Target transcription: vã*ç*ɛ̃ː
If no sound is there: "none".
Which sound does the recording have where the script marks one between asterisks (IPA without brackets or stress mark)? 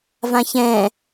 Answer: ç